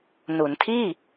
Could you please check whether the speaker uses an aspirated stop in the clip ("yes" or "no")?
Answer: yes